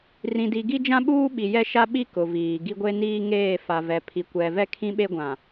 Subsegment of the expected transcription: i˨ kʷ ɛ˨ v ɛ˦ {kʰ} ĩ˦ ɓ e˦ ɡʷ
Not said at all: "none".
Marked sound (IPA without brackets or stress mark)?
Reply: kʰ